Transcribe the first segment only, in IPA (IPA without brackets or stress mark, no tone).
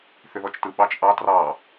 θ